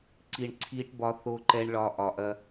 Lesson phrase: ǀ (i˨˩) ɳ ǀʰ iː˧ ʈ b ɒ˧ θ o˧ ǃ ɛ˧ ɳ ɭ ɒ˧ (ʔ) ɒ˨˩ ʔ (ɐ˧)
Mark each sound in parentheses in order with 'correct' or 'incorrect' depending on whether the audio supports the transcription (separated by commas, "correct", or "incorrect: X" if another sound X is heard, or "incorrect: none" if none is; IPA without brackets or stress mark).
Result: correct, correct, correct